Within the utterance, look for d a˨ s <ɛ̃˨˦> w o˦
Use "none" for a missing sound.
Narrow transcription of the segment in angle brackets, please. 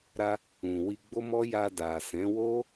ɛ̃˨˦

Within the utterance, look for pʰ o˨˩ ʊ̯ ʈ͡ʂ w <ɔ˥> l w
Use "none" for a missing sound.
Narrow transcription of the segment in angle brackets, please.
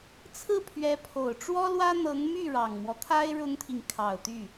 ɔ˥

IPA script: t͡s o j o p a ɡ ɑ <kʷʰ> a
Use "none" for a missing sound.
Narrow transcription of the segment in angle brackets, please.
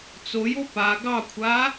kʷʰ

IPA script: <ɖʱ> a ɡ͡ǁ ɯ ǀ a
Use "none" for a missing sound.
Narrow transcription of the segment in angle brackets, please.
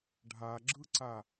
ɖʱ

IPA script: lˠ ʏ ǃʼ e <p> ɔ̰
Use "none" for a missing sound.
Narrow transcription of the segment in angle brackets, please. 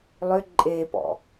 p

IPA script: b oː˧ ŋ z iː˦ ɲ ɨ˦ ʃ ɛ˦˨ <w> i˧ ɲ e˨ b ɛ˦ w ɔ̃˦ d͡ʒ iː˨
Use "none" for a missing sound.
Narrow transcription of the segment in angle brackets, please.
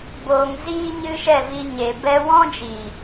v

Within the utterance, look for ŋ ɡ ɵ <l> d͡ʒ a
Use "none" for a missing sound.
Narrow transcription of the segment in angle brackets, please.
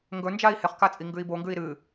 n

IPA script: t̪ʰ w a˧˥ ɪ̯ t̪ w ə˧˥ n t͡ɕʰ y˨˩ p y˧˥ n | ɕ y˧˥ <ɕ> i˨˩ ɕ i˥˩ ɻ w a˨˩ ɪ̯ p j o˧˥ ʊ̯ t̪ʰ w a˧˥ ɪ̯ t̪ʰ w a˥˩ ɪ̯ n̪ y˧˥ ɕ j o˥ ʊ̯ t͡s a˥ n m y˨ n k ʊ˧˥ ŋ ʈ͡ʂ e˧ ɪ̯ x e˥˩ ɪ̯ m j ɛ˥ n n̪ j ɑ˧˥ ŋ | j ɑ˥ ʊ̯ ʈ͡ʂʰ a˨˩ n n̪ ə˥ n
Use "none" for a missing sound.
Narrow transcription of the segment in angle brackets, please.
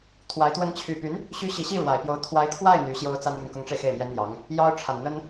ɕ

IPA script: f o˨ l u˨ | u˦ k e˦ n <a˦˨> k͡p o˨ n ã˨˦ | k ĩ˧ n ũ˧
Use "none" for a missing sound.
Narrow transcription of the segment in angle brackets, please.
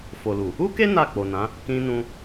a˦˨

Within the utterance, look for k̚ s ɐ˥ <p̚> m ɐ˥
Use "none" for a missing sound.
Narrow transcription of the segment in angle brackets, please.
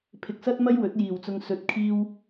t̚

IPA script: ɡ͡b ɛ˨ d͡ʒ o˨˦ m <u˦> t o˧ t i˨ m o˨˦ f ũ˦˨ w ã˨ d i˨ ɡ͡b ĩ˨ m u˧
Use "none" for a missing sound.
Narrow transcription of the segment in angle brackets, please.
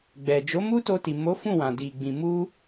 u˦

